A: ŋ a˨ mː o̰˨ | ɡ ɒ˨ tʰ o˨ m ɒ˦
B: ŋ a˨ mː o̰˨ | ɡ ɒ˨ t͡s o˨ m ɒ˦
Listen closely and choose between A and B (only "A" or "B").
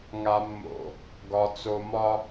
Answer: B